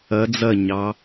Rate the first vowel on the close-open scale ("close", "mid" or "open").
open